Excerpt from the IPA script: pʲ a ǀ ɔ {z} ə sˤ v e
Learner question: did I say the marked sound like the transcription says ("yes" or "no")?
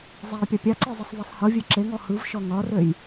no